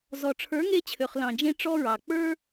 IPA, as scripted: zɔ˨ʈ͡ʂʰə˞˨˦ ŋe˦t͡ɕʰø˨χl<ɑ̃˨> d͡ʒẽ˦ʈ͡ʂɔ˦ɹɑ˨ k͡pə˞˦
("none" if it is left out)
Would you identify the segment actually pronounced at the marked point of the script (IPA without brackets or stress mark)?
ɑ̃˨